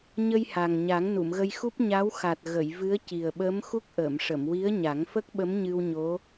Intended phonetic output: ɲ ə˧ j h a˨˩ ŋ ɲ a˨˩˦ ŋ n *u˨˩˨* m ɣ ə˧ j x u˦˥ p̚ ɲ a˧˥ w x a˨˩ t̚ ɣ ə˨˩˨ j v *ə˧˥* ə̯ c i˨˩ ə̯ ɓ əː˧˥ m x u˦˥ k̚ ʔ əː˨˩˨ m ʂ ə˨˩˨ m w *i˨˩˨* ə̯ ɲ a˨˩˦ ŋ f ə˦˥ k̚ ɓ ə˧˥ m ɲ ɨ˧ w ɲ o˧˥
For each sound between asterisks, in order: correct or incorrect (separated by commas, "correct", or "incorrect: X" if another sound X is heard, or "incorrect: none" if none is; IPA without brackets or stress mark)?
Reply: correct, incorrect: ɨ˧˥, incorrect: i˧˥